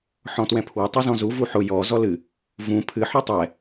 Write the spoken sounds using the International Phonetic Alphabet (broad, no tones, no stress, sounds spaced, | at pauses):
ħ ɔ̃ t w ɛ̃ pʰ w ɘ tˤ ɨ z ɔ̃ z u v u ħ ʊ j ɔ z ɔ l ɨ | v ũ pʰ ɨ ħ ɔ tˤ ɛ